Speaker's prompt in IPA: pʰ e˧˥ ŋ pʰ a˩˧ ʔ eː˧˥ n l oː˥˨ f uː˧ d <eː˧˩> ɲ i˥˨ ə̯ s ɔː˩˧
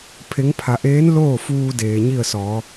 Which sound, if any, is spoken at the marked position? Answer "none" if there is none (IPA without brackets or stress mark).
eː˩